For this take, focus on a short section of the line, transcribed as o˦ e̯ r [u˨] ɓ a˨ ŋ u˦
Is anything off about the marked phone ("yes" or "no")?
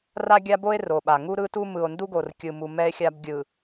yes